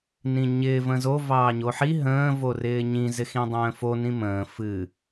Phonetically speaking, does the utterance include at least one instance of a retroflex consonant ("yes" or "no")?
no